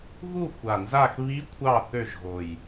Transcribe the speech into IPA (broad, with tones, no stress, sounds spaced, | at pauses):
ɣ u˦˨ xʷ a˨˩ n z a˦˨ x β i˧˥ kʷʰ ɑ˦˨ θ ø˦˨ ʒ ɣ o˨˩ j